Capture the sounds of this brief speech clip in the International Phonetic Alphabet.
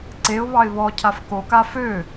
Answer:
ǀ e ʊ̯ β ɑ ɪ̯ β ɔ cʰ a f k o k a f ø

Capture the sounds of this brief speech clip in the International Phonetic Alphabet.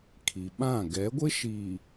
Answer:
kʰ i˨ ɓ ã˦˨ ɡ ɛ˨˦ ɡʷ ɪ˦ ʃ iː˨

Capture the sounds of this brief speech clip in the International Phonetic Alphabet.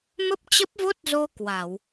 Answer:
m ə˦˥ p̚ t͡ɕ ə˦˥ p̚ v o˦˥ t̚ z o˧ k w a˧˩˨ w

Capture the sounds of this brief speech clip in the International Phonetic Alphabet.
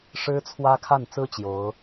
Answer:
ʂ ɻ̩˥ t͡sʰ w ä˥ kʰ a˥˩ n t͡s ɹ̩˥ t͡ɕ j o˧˥ ʊ̯

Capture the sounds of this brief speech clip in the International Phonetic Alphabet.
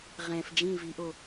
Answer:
ʁ ɛ̃ f d͡ʒ ĩ v i ʔ o

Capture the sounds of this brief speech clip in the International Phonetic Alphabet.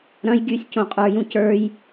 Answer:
ɾ ɐ̃ j ɡʲ ʉ sʲ c õ qʼ ə˞ j ũ c ə˞ j

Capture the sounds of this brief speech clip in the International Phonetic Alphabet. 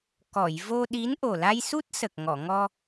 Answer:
k ɔ˨˩˨ j v o˧ ɗ i˧˥ n ʔ o˨˩ l a˧ j s u˦˥ t̚ s ə˨˩ k̚ ŋ ɔ˨˩˨ ŋ ɔ˧

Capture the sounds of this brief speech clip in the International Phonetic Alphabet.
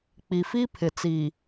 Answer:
k͡p i˨ f i˦ pʰ ɪ˨ t͡s i˨

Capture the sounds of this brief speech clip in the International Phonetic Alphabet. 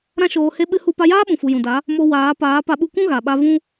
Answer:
ɾ ã˦ ʃ oː˧ h e˦ ɓ ɨ˦ h u˦ p a˧ j aː˦ ɓ ũ˨ f u˨ j ũ˨ d a˨˦ | m o˧ w aː˨˦ p aː˨˦ p a˧ ɓ u˧ kʷ ũ˦ ɣ a˨ ɓ a˧ v ũ˦

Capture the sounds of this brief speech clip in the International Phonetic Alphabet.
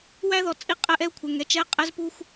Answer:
w æ˦ ð ɔ˨ t͡sʼ i˦ qʼ ɛ˦ ʔ ɛ˦ u̯ kʷʰ ɛ˨ ŋ ɛ˦˨ t͡ʃ ɛ˦ qʼ ɛ˦ z p u˦ xʷ

